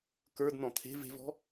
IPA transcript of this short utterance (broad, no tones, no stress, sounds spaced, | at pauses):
k ə˞ d n ɔ̃ t̪ʰ e̤ v e̤ v ɔ̤